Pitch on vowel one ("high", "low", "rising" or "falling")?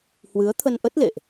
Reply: rising